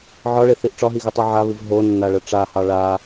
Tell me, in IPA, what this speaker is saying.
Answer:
ʕ ɒ ɭ e θ i ʔ ʈ͡ʂ ɒ ɦ i ɣ ɨ tˤ u ʕ a β ɨ v ɦ o nː a ɭ ə ʈ͡ʂ a h ɑ ɭ a

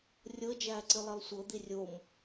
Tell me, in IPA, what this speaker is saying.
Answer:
rʲ ɤ d͡ʒ æː ǀ ɨ lˠ i lˠ sʷ ɤ d̪ i rʲ o m

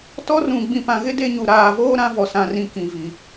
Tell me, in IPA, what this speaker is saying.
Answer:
t ɔ˦ r ũ˨ ɡ͡b ĩ˨ p ã˨ ɣ ɪ˦ d e˦ ɲ u˨ ɾ aː˨ v oː˦ ɾ ã˨˦ v ɔ˨ s ã˨ r ĩ˨ k ĩ˨ v i˨

